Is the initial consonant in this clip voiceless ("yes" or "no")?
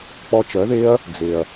yes